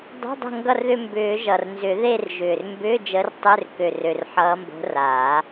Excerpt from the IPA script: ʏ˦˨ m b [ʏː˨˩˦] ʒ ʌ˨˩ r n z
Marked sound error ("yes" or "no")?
no